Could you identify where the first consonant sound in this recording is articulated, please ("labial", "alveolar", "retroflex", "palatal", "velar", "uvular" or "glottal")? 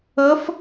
labial